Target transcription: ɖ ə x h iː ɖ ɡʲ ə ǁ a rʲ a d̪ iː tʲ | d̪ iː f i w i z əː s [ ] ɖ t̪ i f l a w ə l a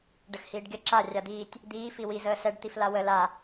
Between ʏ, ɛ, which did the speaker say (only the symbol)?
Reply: ɛ